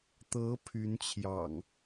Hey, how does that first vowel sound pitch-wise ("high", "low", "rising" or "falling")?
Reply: rising